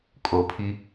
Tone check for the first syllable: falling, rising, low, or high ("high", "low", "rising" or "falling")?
low